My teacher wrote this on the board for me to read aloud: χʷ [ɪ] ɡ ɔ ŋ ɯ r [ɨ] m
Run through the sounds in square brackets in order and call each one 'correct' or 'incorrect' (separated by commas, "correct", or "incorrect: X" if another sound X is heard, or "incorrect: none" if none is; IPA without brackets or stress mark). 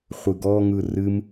incorrect: ɨ, correct